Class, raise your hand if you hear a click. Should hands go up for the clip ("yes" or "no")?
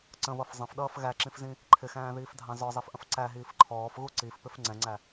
yes